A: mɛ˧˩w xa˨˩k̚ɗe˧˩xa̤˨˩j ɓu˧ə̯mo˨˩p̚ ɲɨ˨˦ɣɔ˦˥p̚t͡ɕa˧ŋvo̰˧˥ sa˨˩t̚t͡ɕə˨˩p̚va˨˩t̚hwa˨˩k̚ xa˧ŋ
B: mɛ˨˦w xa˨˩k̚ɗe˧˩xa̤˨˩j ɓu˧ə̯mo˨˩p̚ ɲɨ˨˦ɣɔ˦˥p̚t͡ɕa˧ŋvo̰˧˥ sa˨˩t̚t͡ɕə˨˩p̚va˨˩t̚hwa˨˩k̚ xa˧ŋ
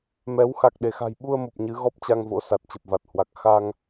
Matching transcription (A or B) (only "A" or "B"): B